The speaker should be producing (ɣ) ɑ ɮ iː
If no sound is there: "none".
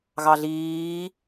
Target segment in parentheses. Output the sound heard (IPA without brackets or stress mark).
ɣ